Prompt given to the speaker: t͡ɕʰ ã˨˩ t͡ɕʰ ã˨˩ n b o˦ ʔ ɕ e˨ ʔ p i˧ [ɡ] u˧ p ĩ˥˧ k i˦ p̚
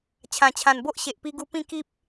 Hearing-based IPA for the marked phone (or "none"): ɡ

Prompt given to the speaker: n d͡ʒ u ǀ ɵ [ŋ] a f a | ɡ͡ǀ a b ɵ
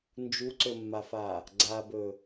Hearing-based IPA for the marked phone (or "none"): mː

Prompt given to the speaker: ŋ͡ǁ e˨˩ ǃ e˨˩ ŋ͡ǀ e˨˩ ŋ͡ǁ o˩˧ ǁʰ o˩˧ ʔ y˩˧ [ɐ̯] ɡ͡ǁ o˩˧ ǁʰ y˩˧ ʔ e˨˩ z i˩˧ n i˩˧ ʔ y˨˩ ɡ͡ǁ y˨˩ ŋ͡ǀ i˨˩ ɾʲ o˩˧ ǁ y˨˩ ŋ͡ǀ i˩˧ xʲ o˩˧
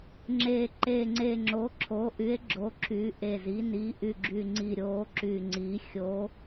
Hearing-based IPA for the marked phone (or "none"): e̯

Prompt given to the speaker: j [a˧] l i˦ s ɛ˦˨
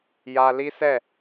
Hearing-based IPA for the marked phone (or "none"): a˧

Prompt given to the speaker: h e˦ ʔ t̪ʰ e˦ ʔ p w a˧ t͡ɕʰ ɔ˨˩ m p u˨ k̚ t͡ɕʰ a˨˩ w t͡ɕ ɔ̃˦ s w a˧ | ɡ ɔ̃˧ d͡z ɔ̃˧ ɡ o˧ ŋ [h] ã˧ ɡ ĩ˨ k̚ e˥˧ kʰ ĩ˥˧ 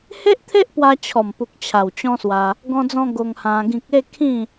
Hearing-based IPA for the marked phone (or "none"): h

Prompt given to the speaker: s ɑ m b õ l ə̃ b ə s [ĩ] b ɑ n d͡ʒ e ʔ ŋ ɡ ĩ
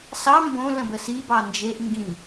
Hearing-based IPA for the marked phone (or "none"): i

